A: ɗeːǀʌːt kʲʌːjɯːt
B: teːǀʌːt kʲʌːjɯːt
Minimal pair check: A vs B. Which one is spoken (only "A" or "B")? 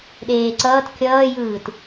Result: A